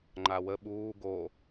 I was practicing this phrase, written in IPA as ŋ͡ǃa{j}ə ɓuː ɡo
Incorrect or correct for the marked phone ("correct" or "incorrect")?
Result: incorrect